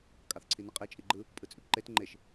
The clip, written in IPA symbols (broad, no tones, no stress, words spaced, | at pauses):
kʼɑθǀʰinɯqʼe t͡ʃʼiɡ͡ǃɯ | pʼɯt͡sʼypǃet ŋ͡ǃeʃ